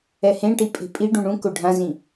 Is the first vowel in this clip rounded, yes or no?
no